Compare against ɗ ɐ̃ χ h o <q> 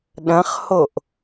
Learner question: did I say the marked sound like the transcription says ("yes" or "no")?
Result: no